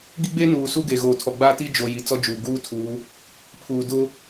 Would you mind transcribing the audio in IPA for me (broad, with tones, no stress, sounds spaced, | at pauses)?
ɡ i˦ ɡ͡b e˦ n uː˨ s u˦ ɡ e˨ ɣ oː˨ tʰ ɔ˨ ɡ͡b aː˦ t i˦ d͡ʒ o˨ j i˨ t͡s ɔ˦ d͡ʒ uː˨ ɡ uː˦ tʰ uː˨˦ | pʰ uː˨ d ʊ˦